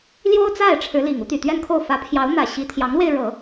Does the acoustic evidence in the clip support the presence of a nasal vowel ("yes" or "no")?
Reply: no